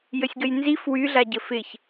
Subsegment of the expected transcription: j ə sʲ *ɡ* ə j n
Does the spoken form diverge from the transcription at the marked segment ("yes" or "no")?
no